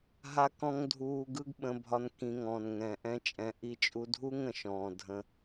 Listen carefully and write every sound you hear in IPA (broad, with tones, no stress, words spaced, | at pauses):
ɦa˦kɔ̃˦ŋ dʱuː˧ɡɯ˦ɡɓə̃˧bʱɒ˧n kĩ˧ŋɔ̃ː˨nŋɛ̃˨ ʔɛ̃˦t͡ʃʼɛ̃˧ ʔi˧t͡ʃʼu˧dʱu˦ŋ ə̃˨ʃɔ̃ː˨dʱə̃˧